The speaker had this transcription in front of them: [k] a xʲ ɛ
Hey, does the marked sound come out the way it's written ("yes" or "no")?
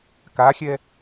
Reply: yes